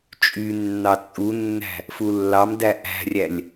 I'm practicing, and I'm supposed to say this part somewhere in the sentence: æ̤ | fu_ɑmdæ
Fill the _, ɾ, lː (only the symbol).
lː